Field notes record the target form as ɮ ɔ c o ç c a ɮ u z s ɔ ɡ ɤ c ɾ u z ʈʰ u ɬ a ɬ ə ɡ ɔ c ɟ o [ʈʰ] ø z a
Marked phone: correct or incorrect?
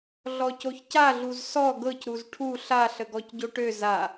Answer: incorrect